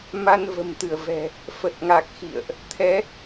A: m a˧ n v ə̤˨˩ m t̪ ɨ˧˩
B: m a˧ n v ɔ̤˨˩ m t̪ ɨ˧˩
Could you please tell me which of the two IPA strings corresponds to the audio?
A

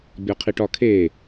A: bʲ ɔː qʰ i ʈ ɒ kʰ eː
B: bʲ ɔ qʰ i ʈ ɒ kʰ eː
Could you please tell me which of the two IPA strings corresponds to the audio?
B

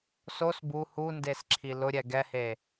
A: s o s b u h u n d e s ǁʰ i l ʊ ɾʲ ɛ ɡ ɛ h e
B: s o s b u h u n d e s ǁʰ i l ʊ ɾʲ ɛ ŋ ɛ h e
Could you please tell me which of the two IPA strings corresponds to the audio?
A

